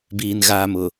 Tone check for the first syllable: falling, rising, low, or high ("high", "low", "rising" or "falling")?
low